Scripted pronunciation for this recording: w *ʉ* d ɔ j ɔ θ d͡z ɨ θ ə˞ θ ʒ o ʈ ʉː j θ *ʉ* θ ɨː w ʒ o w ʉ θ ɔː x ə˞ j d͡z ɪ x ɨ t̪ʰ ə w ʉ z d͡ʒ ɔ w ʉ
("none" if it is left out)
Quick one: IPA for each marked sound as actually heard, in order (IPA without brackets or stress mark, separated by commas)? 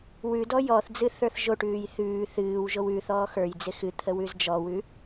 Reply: ʉ, ʉː